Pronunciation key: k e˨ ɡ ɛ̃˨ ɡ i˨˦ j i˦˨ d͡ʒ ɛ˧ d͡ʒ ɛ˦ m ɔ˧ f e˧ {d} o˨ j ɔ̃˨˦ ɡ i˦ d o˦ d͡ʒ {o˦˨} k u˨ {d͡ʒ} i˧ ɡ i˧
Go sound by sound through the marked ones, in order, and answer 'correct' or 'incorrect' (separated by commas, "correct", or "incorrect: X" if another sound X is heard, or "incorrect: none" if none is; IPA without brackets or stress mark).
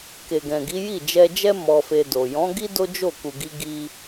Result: correct, correct, incorrect: ɡ